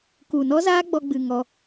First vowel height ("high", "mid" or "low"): high